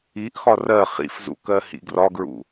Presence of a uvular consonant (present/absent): present